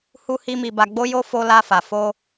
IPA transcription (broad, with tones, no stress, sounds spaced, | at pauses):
h u˦ h i˦ m i˧ b a˧ ɡ͡b o˦ j o˦ f o˧ l a˧ f a˨ f o˧